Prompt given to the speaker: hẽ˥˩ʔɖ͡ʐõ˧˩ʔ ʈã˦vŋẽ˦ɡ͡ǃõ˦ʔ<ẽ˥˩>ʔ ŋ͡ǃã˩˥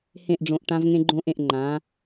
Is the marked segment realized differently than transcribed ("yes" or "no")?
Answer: no